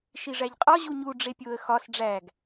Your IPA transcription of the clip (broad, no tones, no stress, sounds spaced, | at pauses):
ʃ i ʐ æ ʎ qʼ ɒ ʑ u ɲ u ɖ͡ʐ e pʲ o ə̯ x ɒ s ɖ͡ʐ æ ɡ